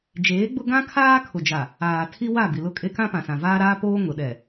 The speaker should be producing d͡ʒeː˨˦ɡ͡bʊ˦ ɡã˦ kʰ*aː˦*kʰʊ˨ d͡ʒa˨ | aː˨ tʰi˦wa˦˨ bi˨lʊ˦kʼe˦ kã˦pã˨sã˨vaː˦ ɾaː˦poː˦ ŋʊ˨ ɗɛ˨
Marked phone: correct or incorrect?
correct